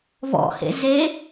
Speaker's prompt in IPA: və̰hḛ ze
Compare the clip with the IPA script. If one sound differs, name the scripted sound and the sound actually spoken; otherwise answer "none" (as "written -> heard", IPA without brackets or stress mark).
ə̰ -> ɔ̰